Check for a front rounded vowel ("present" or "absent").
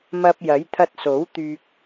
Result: present